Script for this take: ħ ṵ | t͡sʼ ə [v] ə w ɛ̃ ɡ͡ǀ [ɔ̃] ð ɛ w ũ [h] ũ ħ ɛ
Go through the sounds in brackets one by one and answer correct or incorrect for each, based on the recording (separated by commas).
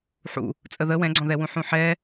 incorrect, correct, incorrect